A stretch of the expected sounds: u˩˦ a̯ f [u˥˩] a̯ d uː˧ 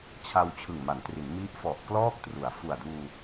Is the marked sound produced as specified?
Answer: no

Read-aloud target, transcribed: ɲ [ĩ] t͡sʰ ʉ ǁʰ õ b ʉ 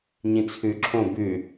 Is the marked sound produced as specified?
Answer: yes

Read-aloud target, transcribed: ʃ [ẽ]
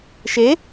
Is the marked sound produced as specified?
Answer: no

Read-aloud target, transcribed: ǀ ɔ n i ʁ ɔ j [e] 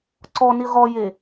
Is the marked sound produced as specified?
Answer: yes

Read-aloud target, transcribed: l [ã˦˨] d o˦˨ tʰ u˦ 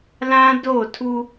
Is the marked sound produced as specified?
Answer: no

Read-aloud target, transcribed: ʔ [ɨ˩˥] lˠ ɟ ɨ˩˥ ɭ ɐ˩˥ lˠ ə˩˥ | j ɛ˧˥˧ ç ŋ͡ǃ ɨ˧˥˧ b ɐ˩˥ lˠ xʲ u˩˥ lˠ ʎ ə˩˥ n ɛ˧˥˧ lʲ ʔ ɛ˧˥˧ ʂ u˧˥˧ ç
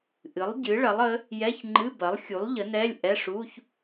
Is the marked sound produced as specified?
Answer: yes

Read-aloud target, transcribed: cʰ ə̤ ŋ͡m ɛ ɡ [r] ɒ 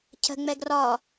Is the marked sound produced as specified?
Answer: yes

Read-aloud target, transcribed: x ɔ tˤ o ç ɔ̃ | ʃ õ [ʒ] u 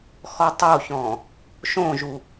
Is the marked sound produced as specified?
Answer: yes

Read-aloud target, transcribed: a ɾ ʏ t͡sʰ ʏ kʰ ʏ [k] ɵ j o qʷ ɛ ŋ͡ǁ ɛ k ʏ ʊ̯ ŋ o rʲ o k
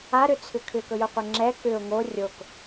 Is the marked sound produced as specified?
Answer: yes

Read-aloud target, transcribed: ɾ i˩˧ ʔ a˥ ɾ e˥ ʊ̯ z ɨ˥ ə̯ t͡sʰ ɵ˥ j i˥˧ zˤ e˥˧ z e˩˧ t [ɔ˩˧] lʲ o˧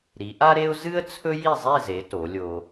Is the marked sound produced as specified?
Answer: no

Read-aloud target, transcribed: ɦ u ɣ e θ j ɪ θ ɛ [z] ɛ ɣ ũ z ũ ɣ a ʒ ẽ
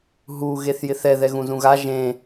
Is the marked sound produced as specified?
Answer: no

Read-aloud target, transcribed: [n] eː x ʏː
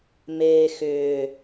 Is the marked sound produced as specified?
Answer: no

